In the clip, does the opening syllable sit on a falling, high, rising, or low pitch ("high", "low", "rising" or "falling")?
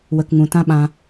low